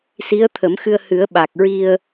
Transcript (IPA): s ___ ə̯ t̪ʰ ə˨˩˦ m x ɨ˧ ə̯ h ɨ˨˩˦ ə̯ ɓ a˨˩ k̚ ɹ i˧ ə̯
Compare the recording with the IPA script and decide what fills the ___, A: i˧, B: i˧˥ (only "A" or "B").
B